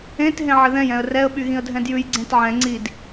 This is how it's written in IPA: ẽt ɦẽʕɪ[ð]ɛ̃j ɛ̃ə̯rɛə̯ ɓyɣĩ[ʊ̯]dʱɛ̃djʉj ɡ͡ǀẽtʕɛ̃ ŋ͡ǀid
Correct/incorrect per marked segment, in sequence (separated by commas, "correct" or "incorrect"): correct, incorrect